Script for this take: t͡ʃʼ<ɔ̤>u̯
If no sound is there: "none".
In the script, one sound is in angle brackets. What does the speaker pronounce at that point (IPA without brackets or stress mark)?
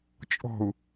ɔ̤